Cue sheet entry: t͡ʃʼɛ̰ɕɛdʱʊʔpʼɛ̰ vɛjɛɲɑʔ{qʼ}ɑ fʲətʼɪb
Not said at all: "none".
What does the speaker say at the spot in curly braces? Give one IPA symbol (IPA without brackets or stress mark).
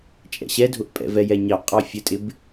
qʼ